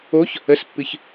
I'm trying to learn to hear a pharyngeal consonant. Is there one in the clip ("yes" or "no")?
no